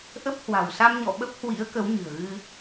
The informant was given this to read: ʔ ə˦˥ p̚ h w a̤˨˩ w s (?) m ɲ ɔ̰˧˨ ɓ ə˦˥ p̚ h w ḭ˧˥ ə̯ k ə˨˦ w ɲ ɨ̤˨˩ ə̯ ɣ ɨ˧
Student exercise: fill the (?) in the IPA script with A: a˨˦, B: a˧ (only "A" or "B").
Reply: B